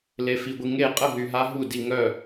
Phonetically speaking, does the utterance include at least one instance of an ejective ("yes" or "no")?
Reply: yes